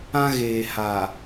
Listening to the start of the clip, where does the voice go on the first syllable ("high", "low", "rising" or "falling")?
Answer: high